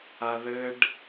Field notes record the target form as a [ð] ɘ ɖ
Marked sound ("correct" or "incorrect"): correct